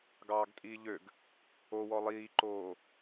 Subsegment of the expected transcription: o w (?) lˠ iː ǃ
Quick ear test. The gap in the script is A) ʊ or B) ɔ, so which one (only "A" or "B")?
B